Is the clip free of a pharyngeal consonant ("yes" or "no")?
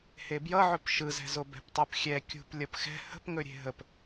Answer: no